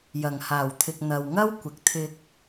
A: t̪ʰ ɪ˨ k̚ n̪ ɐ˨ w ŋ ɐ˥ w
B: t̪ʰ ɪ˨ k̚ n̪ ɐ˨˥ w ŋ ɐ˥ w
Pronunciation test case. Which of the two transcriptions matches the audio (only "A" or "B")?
A